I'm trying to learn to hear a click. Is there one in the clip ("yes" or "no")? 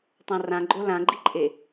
yes